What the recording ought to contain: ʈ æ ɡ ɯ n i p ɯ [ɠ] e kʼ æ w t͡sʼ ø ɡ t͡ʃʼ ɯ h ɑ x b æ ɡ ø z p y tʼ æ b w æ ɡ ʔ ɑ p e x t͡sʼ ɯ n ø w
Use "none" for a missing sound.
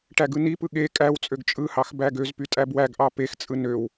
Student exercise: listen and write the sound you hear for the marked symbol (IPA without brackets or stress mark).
ɠ